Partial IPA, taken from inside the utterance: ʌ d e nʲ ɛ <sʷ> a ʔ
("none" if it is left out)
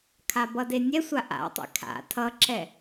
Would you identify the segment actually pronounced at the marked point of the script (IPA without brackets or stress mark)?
sʷ